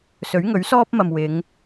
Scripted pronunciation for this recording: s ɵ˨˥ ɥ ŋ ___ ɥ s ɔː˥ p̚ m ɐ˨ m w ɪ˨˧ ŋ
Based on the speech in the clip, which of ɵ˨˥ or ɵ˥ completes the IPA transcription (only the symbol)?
ɵ˨˥